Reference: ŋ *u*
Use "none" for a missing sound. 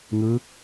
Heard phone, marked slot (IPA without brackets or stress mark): ɯ